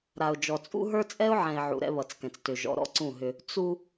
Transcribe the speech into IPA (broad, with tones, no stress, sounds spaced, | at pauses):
ɾ a˨ ʊ̯ d͡ʒ ɔ˨ t͡sʼ ṵ˦ ɦ ə˞˦ t͡sʼ ɛ˦ ʊ̯ ʕ ɛ̃˨ ɪ̯ ʕ ṵ˨ ɾ ɛ̰˦ β ʌ˨ t͡s k ɛ̃˨ t͡s t ʏ˨ ʒ ɔ̰˨ ɾ ɔ̰˦ ǀ ũ˦˨ ɦ ʏ˦ | t͡s u˦